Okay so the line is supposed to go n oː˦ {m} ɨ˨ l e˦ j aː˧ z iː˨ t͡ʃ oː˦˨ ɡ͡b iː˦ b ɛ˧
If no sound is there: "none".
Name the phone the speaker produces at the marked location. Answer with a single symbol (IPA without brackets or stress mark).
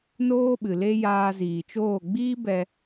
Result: ɓ